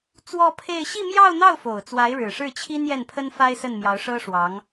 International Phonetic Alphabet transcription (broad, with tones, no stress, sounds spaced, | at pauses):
t͡s w ɔ˥˧ pʰ e˥˧ ɪ̯ ɕ i˥˧ m j ɑ˥˧ ʊ̯ n̪ ɑ˥˩ ʊ̯ f o˨˩ ʊ̯ t͡s w a˧˥ ɪ̯ ɻ ɻ̩˨˩ ʂ ɻ̩˥˩ t͡ɕʰ i˥ n j ɛ˥˩ n pʰ ə˥ n f a˥ ɪ̯ s ə˥˩ n m j ɑ˧˥ ʊ̯ ʂ ɤ˥ ʂ w ɑ˧˥ ŋ